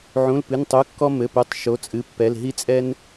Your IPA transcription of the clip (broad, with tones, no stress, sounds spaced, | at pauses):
ʕ ũ˩˧˩ l p ɨ˩˧˩ n tˤ u˩˧˩ kː ɔ˦ m ɘ˩˧˩ p u˩˧˩ tˤ ʃ o˩˧˩ t͡sʼ ɨ˩˧˩ pː ɛ˩˧˩ l ɦ i˦ t͡sʼ ɛ˦ n